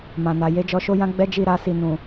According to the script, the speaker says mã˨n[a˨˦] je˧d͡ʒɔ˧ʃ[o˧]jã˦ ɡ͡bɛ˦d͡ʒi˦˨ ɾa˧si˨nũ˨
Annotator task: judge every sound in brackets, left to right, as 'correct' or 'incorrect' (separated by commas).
incorrect, incorrect